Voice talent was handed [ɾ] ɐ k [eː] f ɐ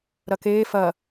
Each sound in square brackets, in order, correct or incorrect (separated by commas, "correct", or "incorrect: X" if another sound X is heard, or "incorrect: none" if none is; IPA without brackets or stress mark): correct, correct